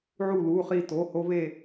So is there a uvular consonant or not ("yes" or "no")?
yes